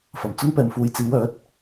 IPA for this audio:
f ɐ˨˩ m t͡s ʊ˥ ŋ p ɛː˨ m f uː˨ j t͡s iː˨˧ w œː˨˥ t̚

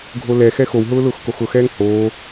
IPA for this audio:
ɡʱ o l ɛ x ɛ x o w ɦ ʊː l ʊː x k o x ʊ x ɛː ŋ h oː

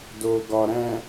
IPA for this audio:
d o˨ ɡ ɒ˨ ɾ æ̃˨

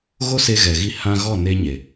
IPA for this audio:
ɣ o˦ s e˧ ɣ ɛ˨ ɣ i˧ h ã˧ ɣ ɔ˦˨ n e˧ ɲ e˨

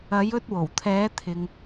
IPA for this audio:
ɐ˨˧ j ɵ˧ t̚ w o˨˩ w t̪ʰ ɛː˨˧ t̪ʰ ɪ˨ ŋ

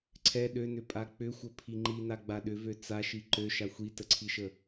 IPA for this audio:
ǀʰ ɛ ɗ ø n ʏ pʼ a k͡p ʏ xʷ ə pʰ i ŋ͡ǃ i n a ɡ͡b a ɗ ʏ v ø t͡s a ʃ i ǃ ø ʃ a xʷ i t ə ǀʰ i ʃ ə

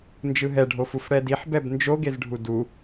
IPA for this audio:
n d͡ʒ ɯ ɦ ɛ ɖʱ o f u f ɽ ɛ d i ħ b ɛ b n d͡ʒ o ɡ e z ɖʱ u d u

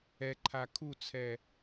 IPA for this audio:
ɛ ǃʰ a kʰ u t͡sʰ ɛ

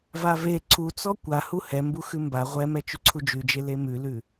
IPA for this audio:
v a v e ǀʰ u t͡s ɔ kʷ a h u h ɛ m b u x ʉ m b a ʁʷ ɛ m ɛ t͡ʃ ʉ ǀʰ u d͡ʒ ʉ d͡ʒ e l e m ʉ l ʉ

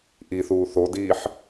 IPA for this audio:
ʔ i θ uː θ o d iː ħ

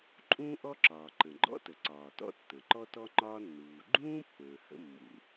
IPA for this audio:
ǃʼ ũː˥ ʔ ɔ˥ ǁ ɒː˩ ǃ ə̃˩ ɡ͡ǃ ɔ̰˥ t ə˩ ǀ ɒː˩ t ɔ̰˥ tː ə̃˩ ǃ ɔ˥ t ɔ˥ ŋ͡ǃ ɒː˥ nː uː˩ ɡ͡ǃ ũː˥ pː ə̃ː˩ h ə̰˥ mː ṵ˩

